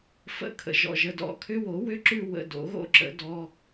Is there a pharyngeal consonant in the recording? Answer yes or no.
no